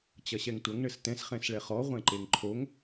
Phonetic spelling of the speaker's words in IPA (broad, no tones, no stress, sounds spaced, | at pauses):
t͡ɕ ɐ ɕ ɛ ŋ tʷ ɐ ŋ ɳ ɘ s t ɛ̃ s χ ɛ̃ s ɭ ɛ χ ɔ ʁʷ ɛ̃ ǃ e ŋ ǃʰ o ŋ